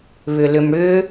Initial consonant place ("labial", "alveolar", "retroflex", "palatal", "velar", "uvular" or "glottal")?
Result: labial